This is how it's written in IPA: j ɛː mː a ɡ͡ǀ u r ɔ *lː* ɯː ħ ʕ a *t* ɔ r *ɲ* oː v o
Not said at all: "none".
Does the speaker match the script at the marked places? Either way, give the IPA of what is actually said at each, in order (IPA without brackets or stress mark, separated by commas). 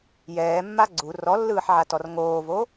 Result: lː, t, ŋ